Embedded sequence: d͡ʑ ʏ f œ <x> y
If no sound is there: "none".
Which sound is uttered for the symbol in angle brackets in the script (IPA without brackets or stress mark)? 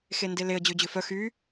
x